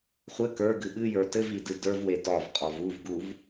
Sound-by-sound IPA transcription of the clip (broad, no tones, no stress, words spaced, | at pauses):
χʷɘ kə˞ɡɨ ɓɨjə˞ tɘv idɨdə˞vwe dɒvqʼɔv uvɡuv